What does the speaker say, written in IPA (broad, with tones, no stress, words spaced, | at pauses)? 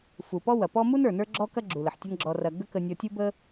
fu˩ pɔ˥wɐ˩pɔ˥ mu˥n ə˞˩nə˞˧ɡ͡ǁɔ˧ kɐ˥ɡ͡ǁu˩ lə˩ħtʲɐ˥nɡ͡ǁɔ˧rɐ˧ ɡə˥kə˧ nʲɔ˧tʲu˥bə˥